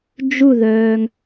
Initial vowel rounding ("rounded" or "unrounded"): rounded